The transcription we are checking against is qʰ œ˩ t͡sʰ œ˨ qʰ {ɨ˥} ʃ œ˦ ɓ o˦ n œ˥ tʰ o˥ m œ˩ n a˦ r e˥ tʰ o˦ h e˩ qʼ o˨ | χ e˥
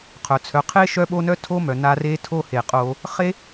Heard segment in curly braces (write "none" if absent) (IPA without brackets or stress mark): e˥